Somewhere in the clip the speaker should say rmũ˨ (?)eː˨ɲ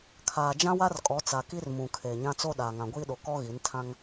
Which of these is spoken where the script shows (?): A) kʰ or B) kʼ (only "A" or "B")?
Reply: A